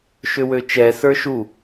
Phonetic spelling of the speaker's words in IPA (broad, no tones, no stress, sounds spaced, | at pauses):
ʃ ʏ w ø t͡ʃ ɛ s ə˞ ʃ u